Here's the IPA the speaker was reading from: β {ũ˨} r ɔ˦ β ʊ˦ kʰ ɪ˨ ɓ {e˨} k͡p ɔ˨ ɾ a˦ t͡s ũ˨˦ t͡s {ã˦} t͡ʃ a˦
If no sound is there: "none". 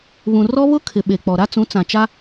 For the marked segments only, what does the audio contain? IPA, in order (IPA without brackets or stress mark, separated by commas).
ũ˨, e˨, ã˨